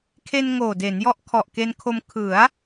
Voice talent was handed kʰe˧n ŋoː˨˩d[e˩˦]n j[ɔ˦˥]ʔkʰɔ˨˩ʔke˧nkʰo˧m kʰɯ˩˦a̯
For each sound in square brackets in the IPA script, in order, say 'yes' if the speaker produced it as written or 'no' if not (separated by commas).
yes, yes